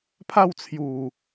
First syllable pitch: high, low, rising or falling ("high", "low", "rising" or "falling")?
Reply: falling